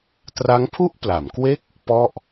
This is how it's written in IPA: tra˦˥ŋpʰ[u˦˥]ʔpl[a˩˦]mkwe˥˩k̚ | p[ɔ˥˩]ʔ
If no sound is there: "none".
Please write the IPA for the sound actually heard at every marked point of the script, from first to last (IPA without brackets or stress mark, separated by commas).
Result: u˥˩, a˩˦, ɔ˥˩